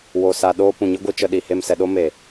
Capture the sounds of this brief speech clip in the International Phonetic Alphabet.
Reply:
wo˧sa˧ɗoː˦ pũ˨ ɲɨ˦ɡʷɨ˧t͡ʃə˧ ɗi˨he˦˨msɛ˧ɗo˦ me˨

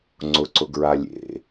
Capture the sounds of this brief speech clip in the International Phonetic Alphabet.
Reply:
ŋ͡ǀʊǀʊɡɹa lʲḛ

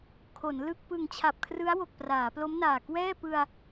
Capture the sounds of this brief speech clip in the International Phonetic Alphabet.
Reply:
kʰo˩˦nlɯ˥˩k̚ pɯ˨˩ŋt͡ɕʰa˨˩p̚kʰrɯ˦˥a̯ wo˨˩k̚praː˩˦plo˦˥mnaː˨˩ kwɛː˥˩pɯ˧a̯

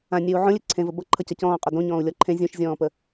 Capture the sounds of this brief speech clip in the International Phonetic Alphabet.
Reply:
ãnʲeu̯ ʕõlʲe ǀʰẽvə bʌǃʰʌcʌ cɔ̃ːqʼo dõɲɔ̃ːu̯lʲɔ ǃʰẽ zʲũʃzʲɔ̃ːpə

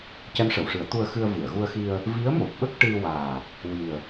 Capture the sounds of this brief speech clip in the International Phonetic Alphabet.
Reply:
cɛ˧˥mʂə˨˩˨w ʂɨ˨˩˦ə̯t̪u˧ə̯xɨ˧ə̯ vɨ˨˩˨ə̯ɣu˧ə̯xi˧ə̯ | vi˧˥ə̯mo˨˩p̚ɓə˦˥k̚ ʈɨ˧waː˨˩ | wi˨˩ə̯

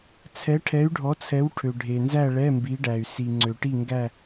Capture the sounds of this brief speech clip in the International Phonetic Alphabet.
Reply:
t͡sʰɛ˨˦ʈʰɛ˨˦y̯ɖʱɔ˨˦t͡sʰɛ˨˦w ʈʰø˩ɖʱe˩nzæ˦˨ ɭɛ˧˥˧mbi˨˦ɖæ˩y̯ si˩ŋ͡ǀø˩ ʈi˦˨ŋɡæ˦˨

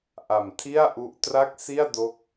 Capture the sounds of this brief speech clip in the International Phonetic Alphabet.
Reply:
ʔa˨˩m tʰi˥˩a̯ ʔu˦˥ʔ tra˥˩k̚si˥˩a̯do˦˥k̚

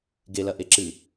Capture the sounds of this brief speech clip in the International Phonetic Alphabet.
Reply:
ɡelɐ ʔeǁɨ

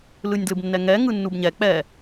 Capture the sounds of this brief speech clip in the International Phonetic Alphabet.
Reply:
lɯnʲdlɯbnːɛŋɛ ŋɯnːubɲɛ k͡pɛ

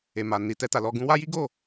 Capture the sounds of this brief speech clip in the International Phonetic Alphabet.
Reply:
e˨ ma˨ ni˨ tɛ˧ta˨lɔ˧ɡũ˦ wa˦ji˦ɡo˦˨

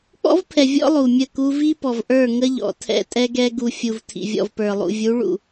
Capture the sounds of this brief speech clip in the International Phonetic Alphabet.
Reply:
k͡pɔ̰˦vpʰɛ˨ vʲɔ̰˦lˠu˨ mʲə˦˨ku˦ vi˦pɔ˨vʔə˞˦˨ ŋə˦ʎɔ̰˨ tʰɛ̰˦tʼɛ˦ɡɛ˦ ɡu˨fʲu˨v tʰḭ˨vʲɔ̰˨vpə˞˨lˠṵ˨ vʲu˨˦ɭṵ˨

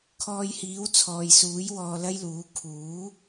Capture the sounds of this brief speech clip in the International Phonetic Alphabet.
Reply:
kʰɔː˧jhiː˨˥wt͡sʰɔː˨jsuː˨˥j wɔː˧lɐ˥jluː˨˥ kʰuː˨˥

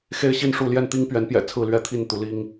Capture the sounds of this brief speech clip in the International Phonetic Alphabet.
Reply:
xe˦ɪ̯ɕi˥˨nʂu˥˨ ljɛ˥˨nt̪i˦ŋpɥɛ˨˦npjɛ̰˨˩ t͡sʰɹ̩˥˨lɥɛ˥˨t̪ʰi˥˨nt̪u˨˦ li˦ŋ

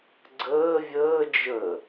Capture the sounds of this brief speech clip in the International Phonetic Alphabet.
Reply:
ɡ͡ǀəː vʲəː d͡ʒə

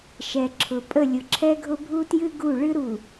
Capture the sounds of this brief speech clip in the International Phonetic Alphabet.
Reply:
ʃɛ˨ǁʰʊ˨ pʼə˦˨lʲʊ˨ǁʰɛ˦ɡʱʊ˦ bʱu˦tjɨ˦ɡu˦˨ ɭɨ˦ɾu˨

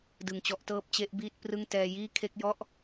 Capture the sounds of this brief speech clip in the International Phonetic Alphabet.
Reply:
dɯ˨˩ŋt͡ɕɔ˦˥ʔtɤː˥˩p̚ t͡ɕe˦˥ʔ biː˥˩t̚prɯ˥˩ŋ tɛː˧jiː˥˩ kʰe˦˥k̚jɔ˥˩ʔ

